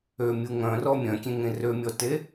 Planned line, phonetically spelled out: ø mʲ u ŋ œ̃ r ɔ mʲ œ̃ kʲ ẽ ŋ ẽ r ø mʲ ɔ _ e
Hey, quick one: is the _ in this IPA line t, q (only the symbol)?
t